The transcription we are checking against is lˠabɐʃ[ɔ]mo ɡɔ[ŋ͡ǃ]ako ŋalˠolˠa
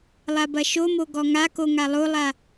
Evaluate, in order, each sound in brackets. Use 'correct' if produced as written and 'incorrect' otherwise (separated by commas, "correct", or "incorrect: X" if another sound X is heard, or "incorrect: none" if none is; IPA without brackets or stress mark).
incorrect: o, incorrect: ŋ